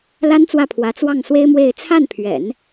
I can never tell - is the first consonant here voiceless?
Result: no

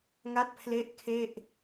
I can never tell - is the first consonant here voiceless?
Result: no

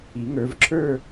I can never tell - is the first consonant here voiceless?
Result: no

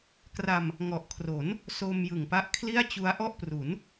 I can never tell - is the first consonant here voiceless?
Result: yes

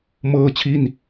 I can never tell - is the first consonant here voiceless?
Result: no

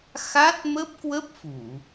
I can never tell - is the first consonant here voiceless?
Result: yes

